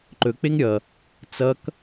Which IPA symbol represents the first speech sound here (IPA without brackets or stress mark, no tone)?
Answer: ǃ